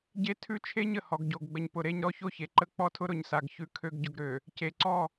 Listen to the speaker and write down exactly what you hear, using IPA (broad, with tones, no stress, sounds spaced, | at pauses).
ɟ e˦ tʰ ʉ˦ t͡ʃʰ e˦ ɲ ə˨ h ɔ˨ ɡ ɟ o˨ ɡ ɡ͡b ə˨ ɲ p ʊ˨ ɾ e˦ ɲ ɾ ɔ˦ ç o˦ ç e˨ ǃ ə˦ k͡p ɔ˦ tʰ ʊ˦ ɾ ʊ˨ ɲ s a˨ ɡ ç ʉ˨ kʰ ø˨ ɡ ɟ ʊ˨ ɡ ɾ ø˨ | c e˨ ǀ ɔ˦˨